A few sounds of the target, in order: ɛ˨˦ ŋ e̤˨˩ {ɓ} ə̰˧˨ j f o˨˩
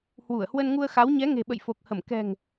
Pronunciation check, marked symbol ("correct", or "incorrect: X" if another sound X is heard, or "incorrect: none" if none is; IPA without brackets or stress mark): correct